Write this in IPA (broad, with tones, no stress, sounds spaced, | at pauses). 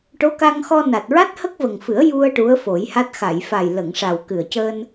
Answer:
ʈ o˧˥ k a˧ ŋ x ɔ˧ n a˨˩ t̚ ɹ a˦˥ t̚ h ə˦˥ k̚ v ə˨˩ ŋ f ɨ˨˩˦ ə̯ j u˧ ə̯ ʈ u˧˥ ə̯ f o˨˩˦ j h a˦˥ t̚ x a˨˩˨ j f a˨˩ j l ə˨˩˨ ŋ ʂ a˨˩ w k ɨ˨˩ ə̯ c əː˧ n